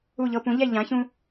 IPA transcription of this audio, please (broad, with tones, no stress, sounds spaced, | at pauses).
u˥˩ ʎ ɤ˧ p ũ˩˥ ʎ ɛ˥˩ ʎ ã˩˥ ç ũ˧